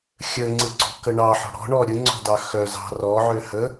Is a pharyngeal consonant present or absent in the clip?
present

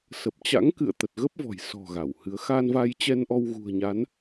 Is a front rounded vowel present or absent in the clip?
absent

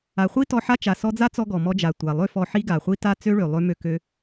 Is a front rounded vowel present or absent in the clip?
present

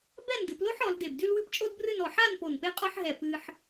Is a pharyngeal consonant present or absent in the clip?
present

